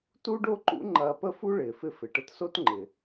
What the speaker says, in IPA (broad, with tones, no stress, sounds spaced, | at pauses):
t u˥ ɖ o˥ ǃ ṵ˥ ŋ͡ǃ ɐː˧ p ə˥ f u˥ ɭ ɪː˩ f ɪ˧ f ɪ˩ ʈ ə˧ t s o˥ t ŋ͡ǃ ɪ˩